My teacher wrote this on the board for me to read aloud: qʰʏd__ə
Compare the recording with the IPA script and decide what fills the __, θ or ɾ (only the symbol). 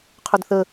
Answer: θ